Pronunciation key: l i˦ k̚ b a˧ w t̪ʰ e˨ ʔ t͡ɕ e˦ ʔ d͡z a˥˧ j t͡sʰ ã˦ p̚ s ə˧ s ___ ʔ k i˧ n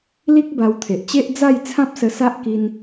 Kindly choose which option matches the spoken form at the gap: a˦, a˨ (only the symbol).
a˦